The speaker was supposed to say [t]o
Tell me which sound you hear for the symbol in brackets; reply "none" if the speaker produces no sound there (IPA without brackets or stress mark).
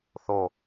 θ